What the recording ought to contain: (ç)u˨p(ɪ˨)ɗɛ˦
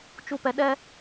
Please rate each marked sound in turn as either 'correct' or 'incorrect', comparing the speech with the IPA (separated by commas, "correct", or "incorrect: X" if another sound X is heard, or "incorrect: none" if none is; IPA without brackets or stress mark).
incorrect: t͡ʃ, incorrect: ɛ˨